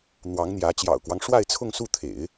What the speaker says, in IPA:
n̪ w ɑ˧˥ ŋ n̪ j ä˧˥ t͡ɕ j ɑ̰˨˩ ʊ̯ k w ɑ˦ ŋ ʂ w a˥˧ ɪ̯ t͡sʰ ʊ˥˧ ŋ s u˥˩ t̪ʰ ḛ˨˩˦ ɪ̯

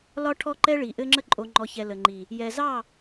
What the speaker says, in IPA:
l ɒ˦ ʈʰ ɔ˦ ǃ ɛ˦ ɭ i˨ ʔ ɘ˦ ŋ͡ǁ ə˦ ǃʼ o˨ ŋ͡ǃ ɔ˨ ç ɛ˨ l ə˨ ŋ͡ǃ i˨ | j ɛ˨ z ɑ˦˨

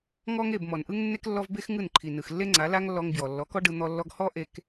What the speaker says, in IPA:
ŋ ɔ˦ ŋ e˦˨ b m ɔ˨ n ʔ ɯ˦ ŋ nː e˦ k lː ɔ˦ v b e˦ x ŋ ɯ˦˨ n ǃʰ i˨ n ɯ˨ x lː e˦ ŋ͡ǀ a˨˦ l a˦ ŋ lː ɔ˧ ŋ b j ɔ˨ lː ɔ˨˦ k ɔ˦ ɖ ɯ˧ n̪ ɔ˧ lː ɔ˧ ɡ h ɔ˦ ʔ e˧ k

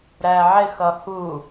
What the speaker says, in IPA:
ɾ æ ʕ ɪ x ʌ h u

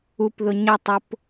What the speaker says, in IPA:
u p ð ʊ ɲ ə tˤ ʊ p

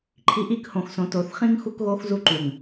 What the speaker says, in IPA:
ǃʰ i˨ ʔ i˦˨ k h õ˨ x s õ˨ t o˨ θ χ ĩ˦ ŋ x u˦ k ɣ o˦ x z u˦ ǃ u˨ ŋ

